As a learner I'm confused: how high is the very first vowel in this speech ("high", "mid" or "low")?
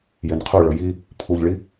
mid